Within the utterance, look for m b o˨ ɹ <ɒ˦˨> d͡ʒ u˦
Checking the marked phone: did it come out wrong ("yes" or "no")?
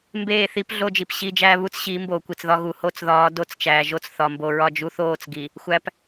no